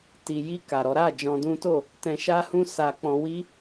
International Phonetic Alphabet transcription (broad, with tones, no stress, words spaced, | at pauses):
ti˨ji˧ ka˨ɾɔ˨˦ ɾa˦˨ d͡ʒɔ̃˧dũ˦to˦˨ | tɛ̃˧ʃa˦hũ˦ sa˦k͡pɔ̃˦ wi˦